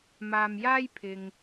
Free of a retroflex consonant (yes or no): yes